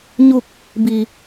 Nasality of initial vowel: oral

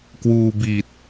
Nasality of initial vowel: oral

